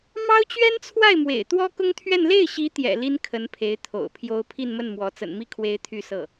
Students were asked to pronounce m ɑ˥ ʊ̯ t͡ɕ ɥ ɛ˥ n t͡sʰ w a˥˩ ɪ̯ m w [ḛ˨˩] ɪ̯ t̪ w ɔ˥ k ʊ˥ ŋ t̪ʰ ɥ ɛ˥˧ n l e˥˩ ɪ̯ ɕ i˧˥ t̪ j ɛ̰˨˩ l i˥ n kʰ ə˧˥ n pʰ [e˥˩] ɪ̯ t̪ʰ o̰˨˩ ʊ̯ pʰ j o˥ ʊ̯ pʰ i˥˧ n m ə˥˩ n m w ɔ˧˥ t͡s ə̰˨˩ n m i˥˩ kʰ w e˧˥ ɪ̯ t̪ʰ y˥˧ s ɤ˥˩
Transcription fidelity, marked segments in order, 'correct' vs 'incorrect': correct, incorrect

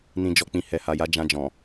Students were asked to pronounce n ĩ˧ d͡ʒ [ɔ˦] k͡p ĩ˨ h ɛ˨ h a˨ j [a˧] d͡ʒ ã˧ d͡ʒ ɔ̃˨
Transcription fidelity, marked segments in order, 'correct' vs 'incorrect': incorrect, incorrect

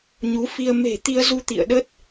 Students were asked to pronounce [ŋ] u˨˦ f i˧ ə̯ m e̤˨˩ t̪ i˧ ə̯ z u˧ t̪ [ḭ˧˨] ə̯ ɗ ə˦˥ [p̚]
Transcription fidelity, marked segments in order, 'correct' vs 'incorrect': incorrect, correct, incorrect

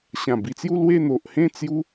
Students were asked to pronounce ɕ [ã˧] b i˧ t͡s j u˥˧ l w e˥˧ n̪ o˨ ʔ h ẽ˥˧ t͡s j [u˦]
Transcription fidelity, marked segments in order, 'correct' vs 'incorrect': incorrect, correct

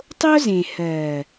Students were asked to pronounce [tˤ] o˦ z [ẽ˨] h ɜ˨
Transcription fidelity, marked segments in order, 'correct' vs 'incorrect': correct, correct

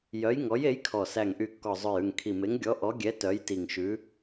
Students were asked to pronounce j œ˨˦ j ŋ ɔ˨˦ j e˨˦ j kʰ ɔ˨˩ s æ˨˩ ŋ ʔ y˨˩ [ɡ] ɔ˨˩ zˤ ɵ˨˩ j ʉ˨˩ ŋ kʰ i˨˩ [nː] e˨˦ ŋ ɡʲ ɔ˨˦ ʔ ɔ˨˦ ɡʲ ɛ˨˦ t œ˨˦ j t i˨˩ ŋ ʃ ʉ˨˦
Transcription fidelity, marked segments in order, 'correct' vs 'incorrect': incorrect, incorrect

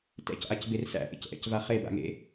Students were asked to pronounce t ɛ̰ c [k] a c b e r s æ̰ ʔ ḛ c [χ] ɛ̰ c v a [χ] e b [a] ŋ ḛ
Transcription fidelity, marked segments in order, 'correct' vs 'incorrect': incorrect, incorrect, correct, incorrect

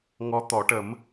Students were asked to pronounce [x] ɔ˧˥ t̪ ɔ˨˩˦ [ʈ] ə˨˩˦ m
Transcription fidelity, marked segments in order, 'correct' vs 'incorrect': incorrect, correct

